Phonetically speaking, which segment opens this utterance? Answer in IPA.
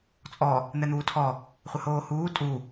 t͡sʼ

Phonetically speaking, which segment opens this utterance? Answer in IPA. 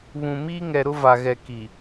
β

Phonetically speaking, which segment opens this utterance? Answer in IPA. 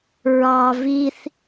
ɹ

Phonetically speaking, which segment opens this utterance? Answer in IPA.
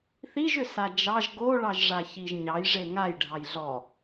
θ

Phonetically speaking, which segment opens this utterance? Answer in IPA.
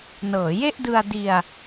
n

